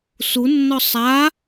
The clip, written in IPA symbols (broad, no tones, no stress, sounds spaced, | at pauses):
s u nː ɔ sˤ a